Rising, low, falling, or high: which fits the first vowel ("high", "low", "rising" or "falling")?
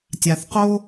low